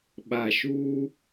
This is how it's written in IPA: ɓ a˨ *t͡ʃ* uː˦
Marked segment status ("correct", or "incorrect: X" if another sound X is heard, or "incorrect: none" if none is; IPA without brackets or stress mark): incorrect: ʃ